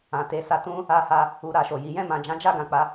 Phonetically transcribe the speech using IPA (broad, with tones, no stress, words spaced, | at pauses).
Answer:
ã˨te˨˦ sa˧ tũ˦ | a˧ha˧ | u˧ɾa˨ʃo˨ji˨˦ jɛ̃˦˨mã˨d͡ʒã˨˦d͡ʒa˦˨ ɡã˨k͡pa˨˦